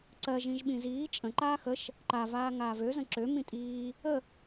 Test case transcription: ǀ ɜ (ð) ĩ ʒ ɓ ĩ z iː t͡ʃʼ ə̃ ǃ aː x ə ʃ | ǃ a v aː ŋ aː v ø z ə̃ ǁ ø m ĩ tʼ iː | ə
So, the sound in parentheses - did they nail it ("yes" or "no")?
no